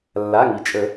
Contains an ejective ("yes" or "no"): yes